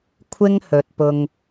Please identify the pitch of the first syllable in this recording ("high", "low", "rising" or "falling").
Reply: high